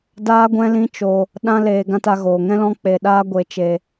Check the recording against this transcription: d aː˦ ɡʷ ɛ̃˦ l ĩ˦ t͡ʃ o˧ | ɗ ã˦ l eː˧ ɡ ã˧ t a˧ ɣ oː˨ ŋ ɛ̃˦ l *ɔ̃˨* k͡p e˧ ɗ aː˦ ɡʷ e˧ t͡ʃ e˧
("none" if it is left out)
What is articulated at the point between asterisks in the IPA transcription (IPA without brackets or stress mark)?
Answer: ɔ̃˦